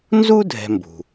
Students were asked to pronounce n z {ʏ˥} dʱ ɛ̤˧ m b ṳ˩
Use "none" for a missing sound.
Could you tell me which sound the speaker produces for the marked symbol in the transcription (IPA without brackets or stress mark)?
u˥